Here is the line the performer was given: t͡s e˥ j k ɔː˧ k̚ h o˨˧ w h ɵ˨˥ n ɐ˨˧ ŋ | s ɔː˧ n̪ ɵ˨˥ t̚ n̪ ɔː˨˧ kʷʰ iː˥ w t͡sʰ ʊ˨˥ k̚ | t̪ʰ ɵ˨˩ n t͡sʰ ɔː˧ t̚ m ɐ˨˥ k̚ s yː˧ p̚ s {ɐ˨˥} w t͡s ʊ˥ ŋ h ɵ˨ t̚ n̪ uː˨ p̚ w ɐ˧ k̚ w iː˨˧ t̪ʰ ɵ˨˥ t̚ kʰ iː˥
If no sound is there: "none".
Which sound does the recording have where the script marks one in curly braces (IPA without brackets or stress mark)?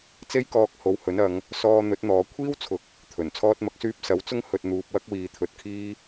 ɐ˨˥